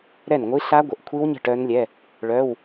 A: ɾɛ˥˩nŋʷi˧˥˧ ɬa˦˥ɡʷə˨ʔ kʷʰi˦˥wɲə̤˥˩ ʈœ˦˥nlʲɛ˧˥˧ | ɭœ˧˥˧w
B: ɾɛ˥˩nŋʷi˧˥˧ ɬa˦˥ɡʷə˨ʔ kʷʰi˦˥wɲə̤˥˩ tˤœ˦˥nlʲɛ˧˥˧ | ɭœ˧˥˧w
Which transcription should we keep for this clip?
A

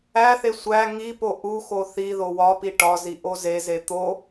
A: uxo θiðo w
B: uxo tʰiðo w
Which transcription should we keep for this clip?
A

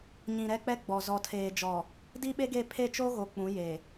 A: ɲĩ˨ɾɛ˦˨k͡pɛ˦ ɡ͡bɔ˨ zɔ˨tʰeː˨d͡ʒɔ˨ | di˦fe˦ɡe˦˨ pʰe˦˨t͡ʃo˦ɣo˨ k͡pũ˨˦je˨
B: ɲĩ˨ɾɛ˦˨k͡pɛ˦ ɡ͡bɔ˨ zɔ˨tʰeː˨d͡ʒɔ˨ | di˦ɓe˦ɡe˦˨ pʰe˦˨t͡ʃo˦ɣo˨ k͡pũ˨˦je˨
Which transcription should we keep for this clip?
B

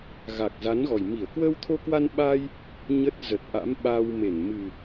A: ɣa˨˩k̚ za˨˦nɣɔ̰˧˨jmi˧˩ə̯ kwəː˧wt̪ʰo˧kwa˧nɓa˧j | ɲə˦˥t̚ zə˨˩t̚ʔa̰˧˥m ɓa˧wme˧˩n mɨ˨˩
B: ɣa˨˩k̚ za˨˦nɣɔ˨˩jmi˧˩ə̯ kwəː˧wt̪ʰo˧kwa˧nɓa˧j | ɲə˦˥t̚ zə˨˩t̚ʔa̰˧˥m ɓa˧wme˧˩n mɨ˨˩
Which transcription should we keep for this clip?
B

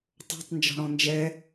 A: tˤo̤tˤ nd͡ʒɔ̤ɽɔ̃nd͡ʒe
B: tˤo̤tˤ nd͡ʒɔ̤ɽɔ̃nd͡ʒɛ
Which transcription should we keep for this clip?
B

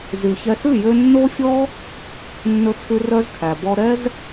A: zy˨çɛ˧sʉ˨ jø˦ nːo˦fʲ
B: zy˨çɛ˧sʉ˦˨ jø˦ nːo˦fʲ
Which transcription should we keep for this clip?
B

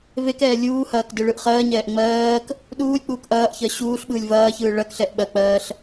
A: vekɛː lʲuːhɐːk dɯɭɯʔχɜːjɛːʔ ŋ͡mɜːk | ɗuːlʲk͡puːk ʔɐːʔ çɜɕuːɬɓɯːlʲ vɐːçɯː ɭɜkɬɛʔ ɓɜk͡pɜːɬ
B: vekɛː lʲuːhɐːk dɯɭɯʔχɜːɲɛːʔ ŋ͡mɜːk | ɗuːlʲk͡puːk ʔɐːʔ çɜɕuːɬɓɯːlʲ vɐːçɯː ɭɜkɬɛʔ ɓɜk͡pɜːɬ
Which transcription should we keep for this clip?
B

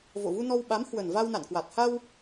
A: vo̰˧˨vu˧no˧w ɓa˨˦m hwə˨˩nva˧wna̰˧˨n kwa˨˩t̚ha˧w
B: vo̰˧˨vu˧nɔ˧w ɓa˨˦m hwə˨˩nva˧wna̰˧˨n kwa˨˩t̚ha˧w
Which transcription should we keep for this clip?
B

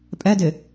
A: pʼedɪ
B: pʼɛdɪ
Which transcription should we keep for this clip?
B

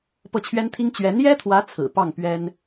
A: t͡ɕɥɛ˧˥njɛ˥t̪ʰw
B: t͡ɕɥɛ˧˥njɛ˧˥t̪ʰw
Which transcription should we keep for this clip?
A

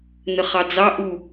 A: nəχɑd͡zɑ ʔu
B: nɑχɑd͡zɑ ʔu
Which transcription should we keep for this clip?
A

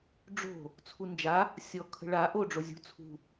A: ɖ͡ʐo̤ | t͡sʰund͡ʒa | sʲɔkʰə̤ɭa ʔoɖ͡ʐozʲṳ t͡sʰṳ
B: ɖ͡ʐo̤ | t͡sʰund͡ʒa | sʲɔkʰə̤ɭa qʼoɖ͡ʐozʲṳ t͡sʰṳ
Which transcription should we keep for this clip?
A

